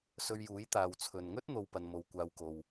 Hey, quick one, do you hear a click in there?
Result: no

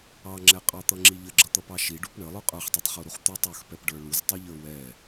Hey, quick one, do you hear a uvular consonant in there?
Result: yes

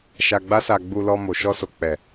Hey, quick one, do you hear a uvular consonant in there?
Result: no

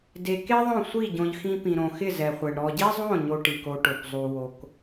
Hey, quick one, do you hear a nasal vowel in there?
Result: yes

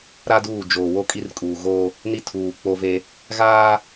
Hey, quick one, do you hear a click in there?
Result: no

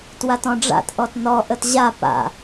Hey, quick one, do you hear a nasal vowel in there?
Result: yes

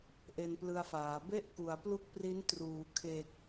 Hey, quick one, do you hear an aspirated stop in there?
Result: yes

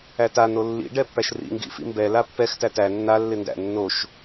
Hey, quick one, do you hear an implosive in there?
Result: no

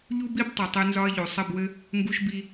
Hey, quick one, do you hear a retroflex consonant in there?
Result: no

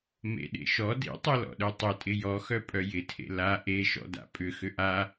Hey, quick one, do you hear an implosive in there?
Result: yes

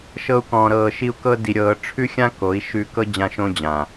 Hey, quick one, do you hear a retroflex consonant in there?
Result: yes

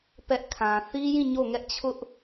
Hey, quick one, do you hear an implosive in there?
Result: no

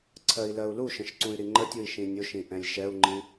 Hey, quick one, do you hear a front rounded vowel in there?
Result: yes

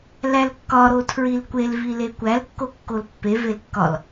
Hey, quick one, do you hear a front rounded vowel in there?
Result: no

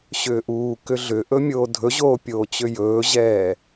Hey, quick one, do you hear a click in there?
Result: no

